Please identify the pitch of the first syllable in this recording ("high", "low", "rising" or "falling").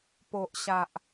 low